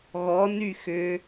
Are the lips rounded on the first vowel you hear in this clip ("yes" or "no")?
yes